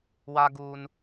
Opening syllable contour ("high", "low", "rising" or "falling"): high